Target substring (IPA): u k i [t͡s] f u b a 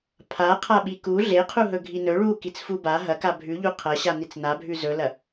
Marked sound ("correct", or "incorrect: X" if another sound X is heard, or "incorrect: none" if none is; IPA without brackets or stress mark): correct